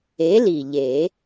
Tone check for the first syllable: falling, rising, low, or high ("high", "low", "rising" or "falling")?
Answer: rising